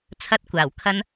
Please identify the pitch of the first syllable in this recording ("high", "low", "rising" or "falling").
high